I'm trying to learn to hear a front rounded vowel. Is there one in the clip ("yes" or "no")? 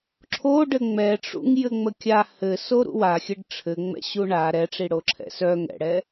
yes